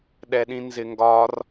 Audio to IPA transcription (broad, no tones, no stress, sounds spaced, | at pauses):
ɗ ɛ ɗ ĩ n z ɪ ŋ ɡ ɒ r